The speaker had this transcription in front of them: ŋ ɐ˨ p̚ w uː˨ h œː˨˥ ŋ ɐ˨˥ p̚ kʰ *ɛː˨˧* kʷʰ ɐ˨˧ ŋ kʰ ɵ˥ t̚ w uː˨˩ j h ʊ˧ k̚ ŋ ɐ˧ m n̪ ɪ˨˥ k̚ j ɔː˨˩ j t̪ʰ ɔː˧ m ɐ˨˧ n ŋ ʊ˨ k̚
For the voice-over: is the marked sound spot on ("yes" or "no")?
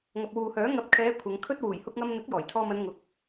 yes